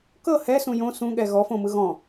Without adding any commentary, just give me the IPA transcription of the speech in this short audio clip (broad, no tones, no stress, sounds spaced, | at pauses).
k ɤ h ɛ s ũ j õ s ũ ɠ ɛ ɣ ɔ f õ m ɯ ɣ ɔ̃